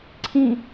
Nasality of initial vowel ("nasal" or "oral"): nasal